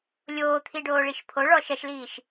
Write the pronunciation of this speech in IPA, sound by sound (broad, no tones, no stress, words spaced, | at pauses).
lʲoːt̪ʰiɖoːɭiʃ pʰoɭɔ ʃɐʃliːʃ